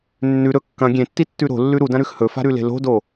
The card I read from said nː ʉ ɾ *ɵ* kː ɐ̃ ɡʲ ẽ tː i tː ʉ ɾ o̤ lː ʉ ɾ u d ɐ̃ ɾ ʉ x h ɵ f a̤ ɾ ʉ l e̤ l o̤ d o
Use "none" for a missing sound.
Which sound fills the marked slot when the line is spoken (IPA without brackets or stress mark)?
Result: ɵ